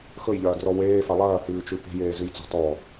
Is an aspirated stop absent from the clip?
yes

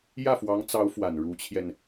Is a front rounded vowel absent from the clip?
yes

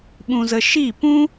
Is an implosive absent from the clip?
no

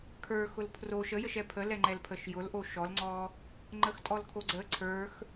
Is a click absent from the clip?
no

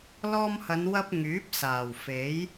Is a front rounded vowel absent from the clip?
no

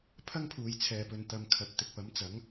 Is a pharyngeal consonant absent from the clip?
yes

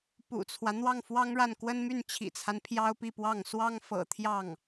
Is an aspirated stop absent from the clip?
no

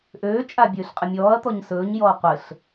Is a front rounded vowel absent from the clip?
no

